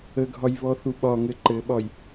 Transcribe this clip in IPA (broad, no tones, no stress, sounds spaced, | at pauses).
ə ɡʱ ɒ j β ɔ θ u ɓ ɒ ŋ ɘ ǃ ɘ ɓ ɒ j